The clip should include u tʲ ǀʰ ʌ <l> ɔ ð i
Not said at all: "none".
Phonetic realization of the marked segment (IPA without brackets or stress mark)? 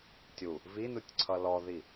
l